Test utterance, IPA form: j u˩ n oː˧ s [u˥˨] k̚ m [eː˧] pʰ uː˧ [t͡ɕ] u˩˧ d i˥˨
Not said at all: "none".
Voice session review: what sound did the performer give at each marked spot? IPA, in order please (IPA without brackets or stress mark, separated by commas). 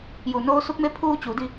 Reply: u˧, e˧, t͡ɕ